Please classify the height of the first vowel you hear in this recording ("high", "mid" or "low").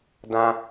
low